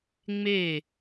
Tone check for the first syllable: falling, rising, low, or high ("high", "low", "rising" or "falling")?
falling